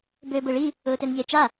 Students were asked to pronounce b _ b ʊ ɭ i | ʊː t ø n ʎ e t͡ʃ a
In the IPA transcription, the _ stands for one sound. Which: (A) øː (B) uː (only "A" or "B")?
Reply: A